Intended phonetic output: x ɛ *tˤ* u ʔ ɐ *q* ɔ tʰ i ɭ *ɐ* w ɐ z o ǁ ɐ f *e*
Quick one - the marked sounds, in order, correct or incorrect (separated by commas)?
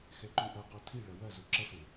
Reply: incorrect, correct, correct, correct